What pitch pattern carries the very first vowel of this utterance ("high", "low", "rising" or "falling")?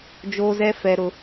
high